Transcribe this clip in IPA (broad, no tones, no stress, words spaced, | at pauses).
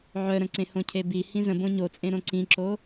ʕœɾə̃ǀẽhõ cʰebi hĩzə̃ bõɲot͡sʼẽɾõ ǀĩǁo